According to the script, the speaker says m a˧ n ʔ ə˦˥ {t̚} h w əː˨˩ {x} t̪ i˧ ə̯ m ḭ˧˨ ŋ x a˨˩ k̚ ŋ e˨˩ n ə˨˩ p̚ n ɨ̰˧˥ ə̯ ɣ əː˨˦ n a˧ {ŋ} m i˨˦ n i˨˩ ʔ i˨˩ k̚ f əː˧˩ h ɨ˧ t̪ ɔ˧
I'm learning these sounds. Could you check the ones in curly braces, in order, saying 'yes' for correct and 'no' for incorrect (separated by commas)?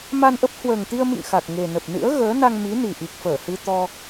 no, no, yes